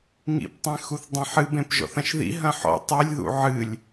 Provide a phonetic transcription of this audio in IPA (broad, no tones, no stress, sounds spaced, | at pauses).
ŋ ḭ p tˤ ẽ x u θ dˤ ĩ ħ ɨ b ẽ p ʒ ɔ̰ θ ɐ̃ ʃ ð ḭ ɦ ɐ̃ ħ ɔ̰ tˤ e lʲ ð ṵ ʕ ɨ lʲ